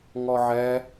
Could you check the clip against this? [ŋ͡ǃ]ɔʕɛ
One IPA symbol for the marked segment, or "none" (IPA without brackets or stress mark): ŋ